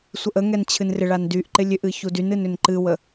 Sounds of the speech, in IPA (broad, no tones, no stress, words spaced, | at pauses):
sʷəʔəŋɛn t͡ɕʰɨnrɪɭan dyʔ ǃɪlʲʏʔɨ çudynɨn ʏnǃɨwə